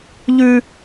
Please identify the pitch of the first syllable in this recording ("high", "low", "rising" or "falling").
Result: high